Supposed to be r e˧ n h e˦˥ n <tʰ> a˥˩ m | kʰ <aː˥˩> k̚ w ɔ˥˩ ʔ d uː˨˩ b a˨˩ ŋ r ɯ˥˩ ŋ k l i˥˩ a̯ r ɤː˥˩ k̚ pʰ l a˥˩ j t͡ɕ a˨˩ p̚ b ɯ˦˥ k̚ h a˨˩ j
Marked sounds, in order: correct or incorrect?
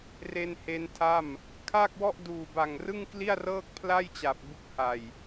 correct, correct

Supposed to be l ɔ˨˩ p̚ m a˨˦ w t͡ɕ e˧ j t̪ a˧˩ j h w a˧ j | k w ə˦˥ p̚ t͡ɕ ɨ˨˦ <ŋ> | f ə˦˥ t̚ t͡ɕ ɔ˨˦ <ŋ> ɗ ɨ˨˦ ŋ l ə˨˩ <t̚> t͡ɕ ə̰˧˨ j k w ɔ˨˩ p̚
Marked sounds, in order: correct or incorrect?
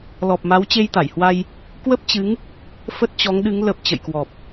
correct, correct, incorrect: p̚

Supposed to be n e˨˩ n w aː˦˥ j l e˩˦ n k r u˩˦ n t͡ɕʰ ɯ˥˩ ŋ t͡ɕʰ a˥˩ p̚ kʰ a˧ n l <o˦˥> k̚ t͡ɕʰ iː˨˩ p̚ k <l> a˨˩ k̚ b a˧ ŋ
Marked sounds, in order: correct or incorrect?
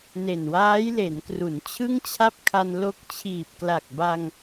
correct, correct

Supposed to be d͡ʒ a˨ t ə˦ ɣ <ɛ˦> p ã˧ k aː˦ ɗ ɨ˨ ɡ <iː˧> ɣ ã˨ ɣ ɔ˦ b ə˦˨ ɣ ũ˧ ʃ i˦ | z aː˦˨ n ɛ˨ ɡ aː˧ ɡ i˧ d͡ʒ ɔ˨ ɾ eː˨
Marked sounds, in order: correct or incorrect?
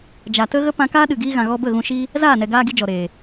incorrect: ə˦, correct

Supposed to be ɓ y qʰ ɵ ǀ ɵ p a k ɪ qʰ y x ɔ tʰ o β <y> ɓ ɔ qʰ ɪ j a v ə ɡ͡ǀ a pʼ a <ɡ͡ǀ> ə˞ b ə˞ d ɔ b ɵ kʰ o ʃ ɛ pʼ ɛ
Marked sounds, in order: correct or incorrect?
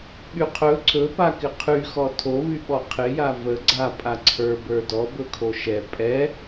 correct, incorrect: ǀʰ

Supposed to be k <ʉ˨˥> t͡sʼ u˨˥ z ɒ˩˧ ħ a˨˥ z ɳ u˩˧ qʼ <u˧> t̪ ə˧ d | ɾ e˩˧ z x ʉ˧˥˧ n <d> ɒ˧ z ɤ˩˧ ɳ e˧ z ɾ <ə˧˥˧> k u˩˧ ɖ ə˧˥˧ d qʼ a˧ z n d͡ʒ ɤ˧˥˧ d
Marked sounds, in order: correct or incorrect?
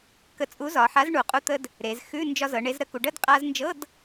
incorrect: ə˨˥, correct, incorrect: d͡ʒ, incorrect: ə˧

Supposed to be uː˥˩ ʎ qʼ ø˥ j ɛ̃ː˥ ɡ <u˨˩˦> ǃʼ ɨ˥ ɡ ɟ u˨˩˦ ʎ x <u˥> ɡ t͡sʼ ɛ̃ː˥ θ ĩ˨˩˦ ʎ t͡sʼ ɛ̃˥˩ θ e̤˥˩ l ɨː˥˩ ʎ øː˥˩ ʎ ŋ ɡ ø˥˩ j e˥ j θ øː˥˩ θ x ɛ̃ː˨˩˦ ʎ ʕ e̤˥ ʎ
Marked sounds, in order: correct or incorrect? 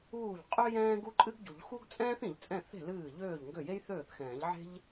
incorrect: u˥, correct

